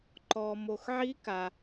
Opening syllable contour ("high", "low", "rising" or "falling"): low